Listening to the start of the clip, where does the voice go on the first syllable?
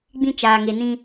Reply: high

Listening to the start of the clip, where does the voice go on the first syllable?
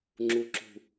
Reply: low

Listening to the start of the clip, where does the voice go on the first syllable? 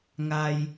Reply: low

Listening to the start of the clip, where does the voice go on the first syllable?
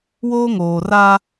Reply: high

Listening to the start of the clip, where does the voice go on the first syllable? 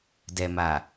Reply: low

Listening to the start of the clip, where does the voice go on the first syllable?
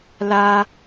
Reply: low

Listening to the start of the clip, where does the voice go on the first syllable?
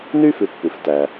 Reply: high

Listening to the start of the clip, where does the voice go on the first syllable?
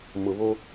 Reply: low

